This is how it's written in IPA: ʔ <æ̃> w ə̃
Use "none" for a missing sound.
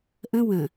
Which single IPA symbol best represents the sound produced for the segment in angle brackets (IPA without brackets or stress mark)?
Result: ə̃